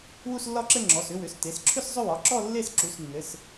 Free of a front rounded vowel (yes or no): no